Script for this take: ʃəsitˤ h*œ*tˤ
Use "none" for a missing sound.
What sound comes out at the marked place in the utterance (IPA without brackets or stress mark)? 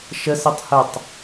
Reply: ə